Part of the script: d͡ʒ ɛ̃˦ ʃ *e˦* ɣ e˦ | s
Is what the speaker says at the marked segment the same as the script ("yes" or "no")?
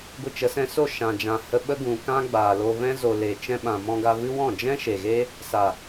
no